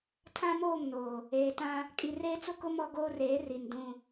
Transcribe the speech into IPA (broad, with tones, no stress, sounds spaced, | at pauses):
tʰ ã˦ m oː˦˨ ŋ n oː˨ | eː˨ t ã˦ | kʼ i˨ r eː˦ t͡s ʊ˦ k ʊ˦ m ɔ˦ ɡ oː˦ r eː˨˦ r i˨ n d ũ˦